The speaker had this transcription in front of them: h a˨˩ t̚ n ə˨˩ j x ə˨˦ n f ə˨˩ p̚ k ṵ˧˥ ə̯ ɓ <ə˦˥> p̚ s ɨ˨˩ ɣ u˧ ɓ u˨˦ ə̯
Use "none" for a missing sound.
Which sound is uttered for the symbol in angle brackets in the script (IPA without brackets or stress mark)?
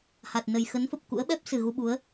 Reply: ɛ˦˥